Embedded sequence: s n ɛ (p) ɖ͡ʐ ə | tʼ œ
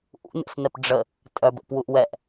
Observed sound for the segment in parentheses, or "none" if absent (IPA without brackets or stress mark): p